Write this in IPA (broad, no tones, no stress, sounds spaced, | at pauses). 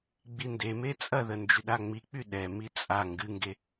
ɡ͡b i n d e m e t͡sʼ ɐ ð ə n d͡ʒ y ɗ a ŋ͡m i k͡p y ɗ ɛ m i t͡sʼ a ŋ ɡ ɨ ŋ ɡ e